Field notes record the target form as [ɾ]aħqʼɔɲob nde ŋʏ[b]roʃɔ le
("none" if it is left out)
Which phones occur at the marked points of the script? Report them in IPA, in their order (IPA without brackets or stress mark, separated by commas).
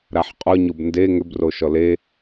ɾ, b